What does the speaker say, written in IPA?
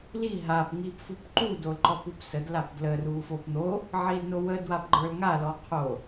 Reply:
l i ɦ a p ŋ i p f u p ǃ u d o l ǃ ɔ p u p s ə d l a p d l ə r u f o p n̪ o | ʕ i l n o w ə d w a p ɡ͡ǃ ə˞ l ŋ a l ɔ qʰ o

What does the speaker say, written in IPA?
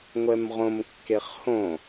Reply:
ŋʷ ɛ m ʁ õ m kː e χ h õ

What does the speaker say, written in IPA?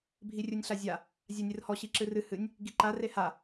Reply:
bʱ i rʲ u nʲ ɬ a zʲ a | zʲ a nʲ ɨ r h ɔ ɕ i ǁ ɨ r ɨ h ɨ nʲ | ɡ i ǃ a r e h a

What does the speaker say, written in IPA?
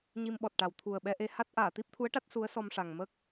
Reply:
ɲ i˧ m ɓ ɔ˨˩ t̚ ʈ a˨˩ w t̪ʰ u˨˩ ə̯ ɓ ɛ˧ ʔ e˧ h a˦˥ t̚ ʔ aː˨˩˨ t̪ i˦˥ p̚ t̪ʰ u˧˥ ə̯ ʈ a˦˥ t̚ s u˧˥ ə̯ s ɔ˧ m ʂ a˨˩ ŋ m ə˦˥ k̚

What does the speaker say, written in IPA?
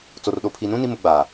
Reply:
t͡s o˨ r ɗ o˨ pʰ i˨ n ũ˦ n i˦ m ʊ˨˦ ɡ͡b aː˨

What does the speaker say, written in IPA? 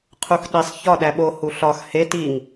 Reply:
qʰ u x ɗ i sˤ ç ɒ ɗ æ ɓ o h u ɬ ɒ x h e t i ŋ

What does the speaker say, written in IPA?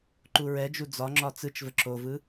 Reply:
ǃ u ɹ ɛ d͡ʒ u d͡z ɒ ŋ͡ǁ ɒ t͡s ɯ t͡ʃ v ə ǁ o v ɯ

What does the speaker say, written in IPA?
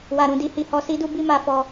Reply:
w a˨ ɾ ũ˨ d i˧ h i˨ h ɔ˧ s i˦ d u˦ b i˦ m a˧ f ɔ˧

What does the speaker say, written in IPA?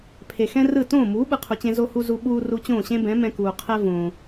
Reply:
pʰ e˩ x ɛ̃˥ r ɯ˥˩ t õː˥˩ m uː˩˥ ɓ ɯ˩ qʰ u˩ t͡ɕ ẽ˧ z o˧ h u˧ z u˧ ɓ uː˧ r u˧ t͡ɕ õː˥˩ ɕ ẽ˥ b ɛ̃˩˥ m ɛ̃˧ k uː˩ qʰ ɛ˥ v õː˩

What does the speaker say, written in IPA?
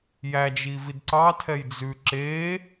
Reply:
j æ d͡ʒ i v i d ǀ ɑ tʰ ɛ j d͡z ʉ ǁ e

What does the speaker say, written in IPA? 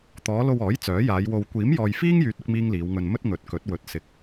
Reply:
t̪ ɔː˨˧ l o˧ w ɔː˨˥ j t͡s œː˨˥ j aː˨˧ j w o˧ w kʷ iː˨˥ m j ɔː˨ j f iː˥ ŋ j yː˨ t̚ ʊ˥ k̚ m iː˥ ŋ l iː˨˧ w ŋ ɵ˧ n m ɵ˥ t̚ ŋ ɵ˨˥ t̚ k ɵ˨˥ t̚ w ɵ˨˥ t̚ s ɪ˨ k̚

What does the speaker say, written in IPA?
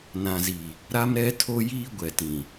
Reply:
n ã˨ z i˨ | ɾ a˦ m ɾ ɛ˦ tʰ o˦ j iː˦ ɡʷ ɛ˨ t ĩ˨

